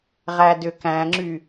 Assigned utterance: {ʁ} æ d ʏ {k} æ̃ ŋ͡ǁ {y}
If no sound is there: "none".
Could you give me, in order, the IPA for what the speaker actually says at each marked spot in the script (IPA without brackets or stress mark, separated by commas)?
ʁ, k, y